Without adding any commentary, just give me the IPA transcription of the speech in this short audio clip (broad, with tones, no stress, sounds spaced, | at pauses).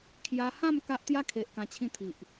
kʰ j a˧ h ã˥˧ m k a˦ ʔ t̪ j a˦ kʰ e˨ ʔ k ã˧ t͡ɕʰ ĩ˥˧ t̪ʰ i˨ ʔ